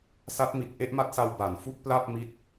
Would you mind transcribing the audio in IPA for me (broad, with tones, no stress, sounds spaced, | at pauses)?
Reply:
s a˦˥ t̚ m i˨˩ t̚ ʔ e˥˩ ʔ m a˦˥ t̚ s a˧ w b a˩˦ n f u˥˩ k̚ p l a˥˩ p̚ m i˦˥ t̚